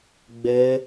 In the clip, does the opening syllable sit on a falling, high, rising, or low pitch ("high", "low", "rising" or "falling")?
high